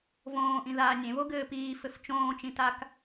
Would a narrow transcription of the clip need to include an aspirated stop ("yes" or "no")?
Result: no